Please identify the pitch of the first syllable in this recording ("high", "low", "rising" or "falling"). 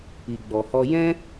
low